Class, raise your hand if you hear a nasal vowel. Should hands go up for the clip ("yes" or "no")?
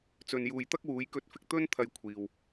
no